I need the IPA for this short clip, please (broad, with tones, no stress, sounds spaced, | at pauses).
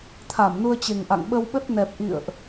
t̪ʰ a˧˩ m n u˧ ə̯ t͡ɕ e˨˩ ŋ ʔ a̰˧˨ ŋ ɓ ə˧ w ɓ ə˦˥ t̚ n ɛ˨˩ p̚ ʔ ḭ˧˨ ə̯ ʔ